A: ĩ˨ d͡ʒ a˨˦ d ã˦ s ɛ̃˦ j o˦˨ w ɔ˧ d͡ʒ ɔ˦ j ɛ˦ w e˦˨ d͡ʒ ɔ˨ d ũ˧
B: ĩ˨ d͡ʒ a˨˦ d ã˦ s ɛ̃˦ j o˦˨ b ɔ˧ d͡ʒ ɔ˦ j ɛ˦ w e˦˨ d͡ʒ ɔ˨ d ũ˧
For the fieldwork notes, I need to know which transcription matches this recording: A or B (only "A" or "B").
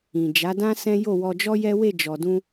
A